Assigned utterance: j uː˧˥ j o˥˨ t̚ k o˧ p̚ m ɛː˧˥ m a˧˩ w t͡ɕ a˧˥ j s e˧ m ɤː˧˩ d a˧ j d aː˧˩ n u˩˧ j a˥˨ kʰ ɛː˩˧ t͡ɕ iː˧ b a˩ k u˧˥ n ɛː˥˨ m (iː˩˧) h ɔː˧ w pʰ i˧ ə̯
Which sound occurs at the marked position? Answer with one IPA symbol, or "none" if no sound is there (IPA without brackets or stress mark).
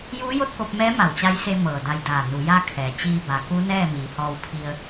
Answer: iː˩˧